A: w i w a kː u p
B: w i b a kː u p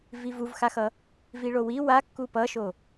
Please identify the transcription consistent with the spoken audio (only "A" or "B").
A